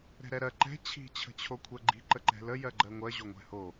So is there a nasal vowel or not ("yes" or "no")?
no